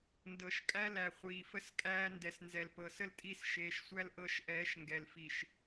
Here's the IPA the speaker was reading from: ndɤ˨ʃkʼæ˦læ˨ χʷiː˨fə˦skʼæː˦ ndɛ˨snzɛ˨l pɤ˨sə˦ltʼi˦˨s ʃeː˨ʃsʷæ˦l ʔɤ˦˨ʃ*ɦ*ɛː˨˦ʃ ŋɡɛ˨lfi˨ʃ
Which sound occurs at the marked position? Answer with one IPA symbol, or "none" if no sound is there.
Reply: ʔ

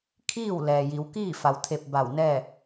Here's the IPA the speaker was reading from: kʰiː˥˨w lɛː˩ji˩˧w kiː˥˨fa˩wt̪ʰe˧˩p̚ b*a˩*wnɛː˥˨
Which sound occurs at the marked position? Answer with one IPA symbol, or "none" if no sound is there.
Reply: a˧˩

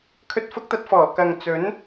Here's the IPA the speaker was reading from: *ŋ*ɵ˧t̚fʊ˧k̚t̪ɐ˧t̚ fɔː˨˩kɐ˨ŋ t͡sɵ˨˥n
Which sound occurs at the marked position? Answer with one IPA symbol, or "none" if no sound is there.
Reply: kʰ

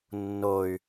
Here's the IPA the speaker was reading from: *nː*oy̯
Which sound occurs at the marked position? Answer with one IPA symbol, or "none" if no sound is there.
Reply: nː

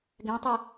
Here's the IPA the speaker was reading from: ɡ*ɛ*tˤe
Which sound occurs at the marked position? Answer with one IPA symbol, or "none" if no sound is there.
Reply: ɛ̃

